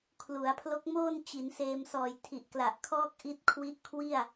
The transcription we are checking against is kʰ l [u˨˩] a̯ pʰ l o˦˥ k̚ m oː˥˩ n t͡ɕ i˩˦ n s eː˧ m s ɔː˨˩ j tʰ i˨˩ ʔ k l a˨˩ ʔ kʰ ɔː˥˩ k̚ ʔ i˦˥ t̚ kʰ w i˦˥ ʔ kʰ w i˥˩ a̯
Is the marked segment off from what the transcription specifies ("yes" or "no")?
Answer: yes